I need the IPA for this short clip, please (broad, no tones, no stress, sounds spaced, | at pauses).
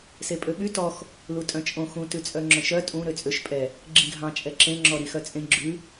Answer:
s e pʼ ø ɓ y t ɔ x | l u tʼ œ̃ t͡ʃʼ õ x ũ t ʉ t͡sʼ œ ŋ͡ǁ œ̃ ʃ œ tʼ ũ ɾ ø t͡sʼ ø ʃ pʼ ɛ | ɡ͡ǁ ĩ ɡʱ ɑ̃ t͡ʃʼ ɛ ǁ ẽ ŋ͡ǁ ɔ ɾ i x œ t͡sʼ ẽ ɡ͡ǁ ʉ